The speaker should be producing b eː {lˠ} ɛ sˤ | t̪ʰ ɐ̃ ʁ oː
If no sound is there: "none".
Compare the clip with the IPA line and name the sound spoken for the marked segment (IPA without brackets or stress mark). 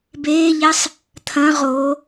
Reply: ʎ